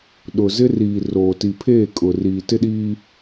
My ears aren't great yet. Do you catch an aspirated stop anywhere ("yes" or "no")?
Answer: yes